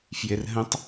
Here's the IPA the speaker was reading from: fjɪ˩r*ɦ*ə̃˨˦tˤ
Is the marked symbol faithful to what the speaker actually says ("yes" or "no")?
yes